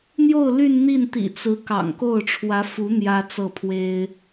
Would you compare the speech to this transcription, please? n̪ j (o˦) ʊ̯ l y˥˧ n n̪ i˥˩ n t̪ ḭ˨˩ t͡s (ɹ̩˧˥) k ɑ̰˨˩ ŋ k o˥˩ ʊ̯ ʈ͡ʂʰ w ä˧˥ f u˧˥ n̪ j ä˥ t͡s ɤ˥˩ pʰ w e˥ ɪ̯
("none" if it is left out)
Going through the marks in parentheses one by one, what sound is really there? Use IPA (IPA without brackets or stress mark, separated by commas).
o˥˧, ɹ̩˧˥